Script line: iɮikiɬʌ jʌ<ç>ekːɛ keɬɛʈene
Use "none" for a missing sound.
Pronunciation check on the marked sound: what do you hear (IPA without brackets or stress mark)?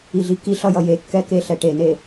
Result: j